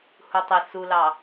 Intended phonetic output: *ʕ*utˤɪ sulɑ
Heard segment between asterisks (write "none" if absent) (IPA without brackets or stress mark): h